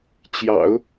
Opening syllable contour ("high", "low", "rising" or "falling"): low